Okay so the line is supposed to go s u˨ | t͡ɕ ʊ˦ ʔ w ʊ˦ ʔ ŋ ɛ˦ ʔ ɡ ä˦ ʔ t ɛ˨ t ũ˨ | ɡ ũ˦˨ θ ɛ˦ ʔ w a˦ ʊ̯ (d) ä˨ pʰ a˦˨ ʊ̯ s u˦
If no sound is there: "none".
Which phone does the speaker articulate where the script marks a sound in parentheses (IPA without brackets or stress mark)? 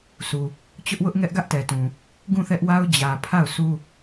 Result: d͡ʑ